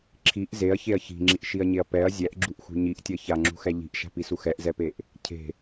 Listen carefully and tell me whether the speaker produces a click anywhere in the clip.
yes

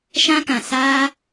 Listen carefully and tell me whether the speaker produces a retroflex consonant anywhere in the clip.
no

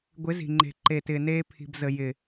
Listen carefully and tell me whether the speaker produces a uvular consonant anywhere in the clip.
no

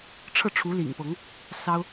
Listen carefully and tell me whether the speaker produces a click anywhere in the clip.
no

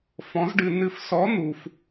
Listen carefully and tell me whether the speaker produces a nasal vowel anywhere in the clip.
yes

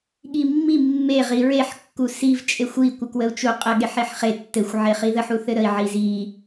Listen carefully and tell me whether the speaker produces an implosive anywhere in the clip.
yes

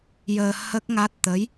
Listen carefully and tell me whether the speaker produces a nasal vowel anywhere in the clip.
no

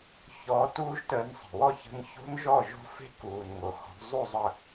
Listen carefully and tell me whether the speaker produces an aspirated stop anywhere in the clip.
no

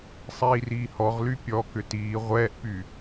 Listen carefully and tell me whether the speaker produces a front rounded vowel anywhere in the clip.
yes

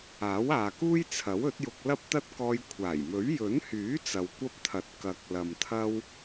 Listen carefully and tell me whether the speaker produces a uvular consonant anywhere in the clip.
no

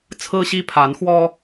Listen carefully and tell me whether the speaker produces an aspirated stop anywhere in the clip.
yes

